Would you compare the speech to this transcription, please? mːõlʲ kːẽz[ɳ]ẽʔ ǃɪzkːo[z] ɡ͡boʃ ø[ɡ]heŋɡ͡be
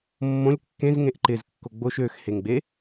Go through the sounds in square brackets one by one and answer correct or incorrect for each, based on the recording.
incorrect, incorrect, incorrect

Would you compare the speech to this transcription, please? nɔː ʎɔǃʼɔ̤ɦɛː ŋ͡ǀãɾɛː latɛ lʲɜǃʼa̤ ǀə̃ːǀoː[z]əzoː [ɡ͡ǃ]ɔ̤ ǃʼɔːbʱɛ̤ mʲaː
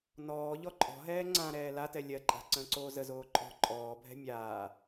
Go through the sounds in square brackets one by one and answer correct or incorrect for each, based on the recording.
correct, incorrect

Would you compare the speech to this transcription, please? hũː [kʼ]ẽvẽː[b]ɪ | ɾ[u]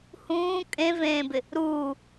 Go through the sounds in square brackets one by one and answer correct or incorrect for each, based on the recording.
correct, correct, incorrect

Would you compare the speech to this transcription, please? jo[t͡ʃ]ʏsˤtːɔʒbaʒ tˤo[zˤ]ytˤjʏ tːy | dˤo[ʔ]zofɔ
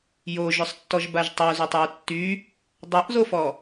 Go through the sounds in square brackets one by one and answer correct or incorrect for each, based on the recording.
incorrect, incorrect, correct

